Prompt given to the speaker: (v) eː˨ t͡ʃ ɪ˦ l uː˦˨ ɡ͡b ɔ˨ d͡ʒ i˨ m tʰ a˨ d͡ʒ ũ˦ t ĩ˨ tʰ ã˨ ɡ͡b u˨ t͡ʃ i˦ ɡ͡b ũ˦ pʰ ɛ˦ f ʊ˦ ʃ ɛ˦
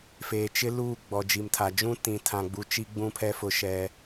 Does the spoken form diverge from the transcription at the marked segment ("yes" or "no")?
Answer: yes